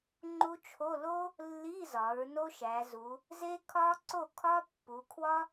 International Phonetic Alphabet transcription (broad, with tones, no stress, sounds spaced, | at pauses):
ŋ͡ǃ u˥ t͡ʃʰ o˧˥˧ l o˥ | lː i˧˥˧ z ɒ˩˧ ɹ n o˥ ʃ æ˩˧ z u˩˧ | z e˥ kʰ ɒ˥ ǀ o˥˨ kʰ ɒ˥ pː u˩˧ kʰ w ɒ˥